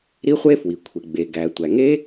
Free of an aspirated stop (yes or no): no